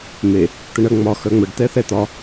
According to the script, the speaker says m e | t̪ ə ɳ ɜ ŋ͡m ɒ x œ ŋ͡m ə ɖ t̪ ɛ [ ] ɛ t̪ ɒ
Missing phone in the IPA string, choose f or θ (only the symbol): θ